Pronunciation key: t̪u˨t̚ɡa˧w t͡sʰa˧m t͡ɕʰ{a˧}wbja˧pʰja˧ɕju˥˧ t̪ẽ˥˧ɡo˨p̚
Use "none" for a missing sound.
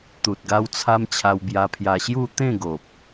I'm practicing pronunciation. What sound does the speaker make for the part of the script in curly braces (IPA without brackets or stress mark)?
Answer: a˧